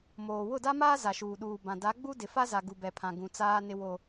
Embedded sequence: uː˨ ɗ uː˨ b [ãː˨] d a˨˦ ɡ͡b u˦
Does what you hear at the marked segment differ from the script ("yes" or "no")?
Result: yes